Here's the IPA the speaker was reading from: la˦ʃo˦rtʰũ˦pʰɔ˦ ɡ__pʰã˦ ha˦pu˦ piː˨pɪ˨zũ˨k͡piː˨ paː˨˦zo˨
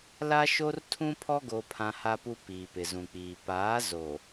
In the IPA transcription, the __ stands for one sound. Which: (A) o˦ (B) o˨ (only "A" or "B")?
A